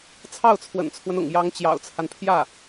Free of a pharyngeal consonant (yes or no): yes